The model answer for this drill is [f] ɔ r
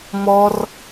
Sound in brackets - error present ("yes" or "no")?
yes